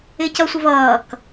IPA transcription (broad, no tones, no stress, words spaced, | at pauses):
ɪcʌsʷɪv ʌːk